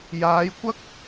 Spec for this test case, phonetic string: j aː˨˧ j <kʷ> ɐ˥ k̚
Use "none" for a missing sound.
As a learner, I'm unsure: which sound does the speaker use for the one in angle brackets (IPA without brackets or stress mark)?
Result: kʷ